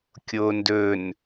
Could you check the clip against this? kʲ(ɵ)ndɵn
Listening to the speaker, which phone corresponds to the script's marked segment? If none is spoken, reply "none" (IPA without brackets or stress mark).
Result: o